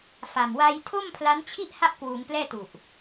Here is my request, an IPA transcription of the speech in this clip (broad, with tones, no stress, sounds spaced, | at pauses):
f a˨˩ m w a˧ j tʰ o˥˩ m pʰ l a˦˥ n t͡ɕʰ i˥˩ ʔ h a˥˩ ʔ k w uː˩˦ ŋ p l ɛː˥˩ t u˨˩ ʔ